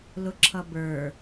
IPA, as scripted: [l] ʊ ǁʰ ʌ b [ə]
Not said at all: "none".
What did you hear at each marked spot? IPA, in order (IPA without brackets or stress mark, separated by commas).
l, ə˞